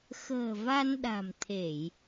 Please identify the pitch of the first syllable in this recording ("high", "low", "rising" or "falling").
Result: low